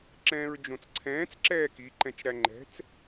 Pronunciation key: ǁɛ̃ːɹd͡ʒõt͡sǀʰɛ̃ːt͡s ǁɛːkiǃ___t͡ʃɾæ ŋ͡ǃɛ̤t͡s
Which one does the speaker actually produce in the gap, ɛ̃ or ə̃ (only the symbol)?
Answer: ɛ̃